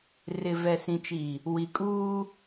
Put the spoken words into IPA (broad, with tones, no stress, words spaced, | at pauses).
rɪ˨vɛ˨sĩ˨t͡ʃi˨ | wi˨kʼuː˦